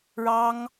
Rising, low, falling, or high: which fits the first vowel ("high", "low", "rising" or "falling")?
high